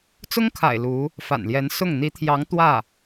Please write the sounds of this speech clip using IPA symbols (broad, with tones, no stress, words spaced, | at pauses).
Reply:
t͡sʊ˥ŋkʰa̰˨˩ɪ̯ lu˧˥ | fa̰˨˩nljɛ˧˥nsʊ˥˩ŋ n̪i˧˥t̪ʰjɑ˧˥ŋ t̪wä˥˩